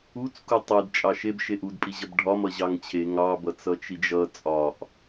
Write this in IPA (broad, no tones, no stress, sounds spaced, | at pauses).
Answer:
u t͡s k u tˤ e d t͡ʃʼ ɑ ʃ e b ʃ e ʔ u d pʼ i ʑ ʌ b ɖʱ ɒ m ʌ ʑ ɑ ŋ t͡ɕʰ e ŋ ɑ b ʌ t͡s ʌ t͡ʃ i d͡ʒ ʌ t͡sʼ ɒ ʔ